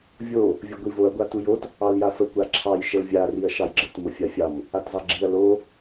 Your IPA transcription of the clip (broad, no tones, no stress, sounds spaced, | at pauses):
vʲ o | vʲ ə ɡʷ i v o ɐ̯ ɡʷ a t u j o t | ɑ l j a f ə kʷ a ǁʰ ɑ j ʃ ə l vʲ a r i ɐ̯ ʃ ɑ j ɡ͡ǁ ə t m o fʲ a fʲ ɑ m | a t z ɑ ɡ͡ǁ i ɐ̯ l o